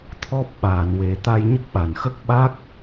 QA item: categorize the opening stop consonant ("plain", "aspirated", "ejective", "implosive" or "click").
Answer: aspirated